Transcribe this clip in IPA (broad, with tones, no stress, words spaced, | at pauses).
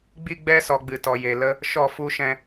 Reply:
ɡ͡bi˧ɡ͡bɛ˧sɔ˨ ɡ͡bɨ˨tɔ˨je˨ lə˦ | ʃɔ˦˨fu˦ ʃɛ̃˧